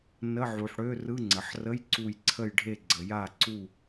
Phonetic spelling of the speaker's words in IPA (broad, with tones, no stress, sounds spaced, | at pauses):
n ə˧˥˧ ʕ u˩ ħ ɽ ø˧˥˧ r ɯ˧˥˧ ŋ͡ǀ ə˩ ħ r ə˧˥˧ j ǀ u˧˩ j ǀʰ ə˧˩ j ɖʱ e˧˩ ɡ͡ǀ ə˩ j a˧˩ ǀ u˧˩